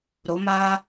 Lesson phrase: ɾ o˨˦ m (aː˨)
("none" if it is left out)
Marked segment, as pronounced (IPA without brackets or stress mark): aː˦